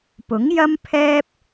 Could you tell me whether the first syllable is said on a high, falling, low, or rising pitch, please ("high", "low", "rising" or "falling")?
rising